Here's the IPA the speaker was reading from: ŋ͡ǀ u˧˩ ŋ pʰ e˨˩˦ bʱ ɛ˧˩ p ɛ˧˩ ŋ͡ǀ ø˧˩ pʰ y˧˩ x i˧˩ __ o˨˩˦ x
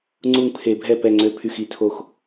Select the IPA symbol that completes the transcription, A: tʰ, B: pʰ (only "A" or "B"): A